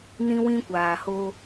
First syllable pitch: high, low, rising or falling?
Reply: high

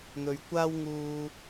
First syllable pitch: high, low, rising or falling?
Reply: low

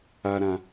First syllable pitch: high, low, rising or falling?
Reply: low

